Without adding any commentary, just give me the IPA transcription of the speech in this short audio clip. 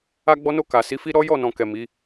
a˧ ɡ͡b ɔ˧ n o˧ k a˨ s i˨˦ f i˦ ɾ ɔ˦ j ɔ˦˨ n ɔ̃˨ k ɛ˨ m i˨˦

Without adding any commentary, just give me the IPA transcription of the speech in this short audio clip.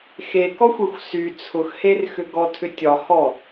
x e k ɔ xʷ e xʷ s y t͡sʰ ʊ x h e r x ʏ ɡ ɔ tʰ ʏ tʲ ɒ h ɔ

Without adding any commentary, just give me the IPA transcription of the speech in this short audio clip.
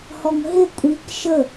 h ɔ ŋ ɦ ɪ kʷʼ i k ʃ ə

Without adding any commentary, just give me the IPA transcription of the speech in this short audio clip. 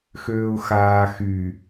x øː ʊ̯ x aː x y

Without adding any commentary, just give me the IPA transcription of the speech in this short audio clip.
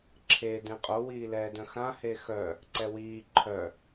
ǁʰ e d ẽ qʼ o w iː l ɛː d œ̃ x ã h e x œ | ǀ ɛ w iː ǃʰ œ

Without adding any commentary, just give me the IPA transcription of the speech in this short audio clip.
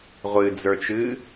ʁʷ ɨ d͡z ə˞ t͡ʃ ɨ

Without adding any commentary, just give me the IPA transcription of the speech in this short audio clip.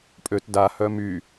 pʼ ø t d a h œ m y

